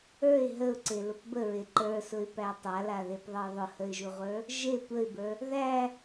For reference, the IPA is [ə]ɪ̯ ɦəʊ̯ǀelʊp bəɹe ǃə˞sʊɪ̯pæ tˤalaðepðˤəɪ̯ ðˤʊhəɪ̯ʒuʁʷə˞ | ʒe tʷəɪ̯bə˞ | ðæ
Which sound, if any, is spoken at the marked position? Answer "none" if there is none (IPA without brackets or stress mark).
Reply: ə˞